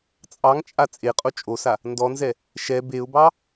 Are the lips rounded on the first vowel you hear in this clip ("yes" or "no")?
no